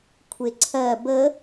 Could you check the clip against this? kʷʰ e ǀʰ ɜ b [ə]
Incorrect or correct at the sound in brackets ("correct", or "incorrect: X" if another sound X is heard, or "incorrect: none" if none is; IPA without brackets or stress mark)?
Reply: correct